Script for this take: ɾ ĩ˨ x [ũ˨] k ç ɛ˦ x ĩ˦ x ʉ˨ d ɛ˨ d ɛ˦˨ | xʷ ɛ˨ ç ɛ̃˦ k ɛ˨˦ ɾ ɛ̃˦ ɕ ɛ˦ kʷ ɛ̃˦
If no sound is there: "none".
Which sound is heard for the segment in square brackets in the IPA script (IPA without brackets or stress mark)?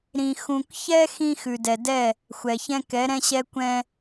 ũ˨